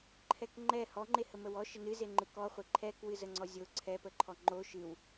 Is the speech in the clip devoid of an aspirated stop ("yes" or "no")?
no